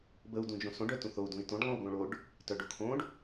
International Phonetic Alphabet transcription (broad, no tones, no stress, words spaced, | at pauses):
bəu̯ dũd͡ʒõsõɖ œtũθou̯ dũi̯tõɖ lˠõu̯ɡõɭoɖ | tœɖokʰõɖ